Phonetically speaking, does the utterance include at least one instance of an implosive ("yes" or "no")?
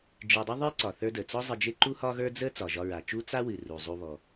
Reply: no